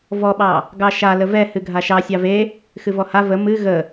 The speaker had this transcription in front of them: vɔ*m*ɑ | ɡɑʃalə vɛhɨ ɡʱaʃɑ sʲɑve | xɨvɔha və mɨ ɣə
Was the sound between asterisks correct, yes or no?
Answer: no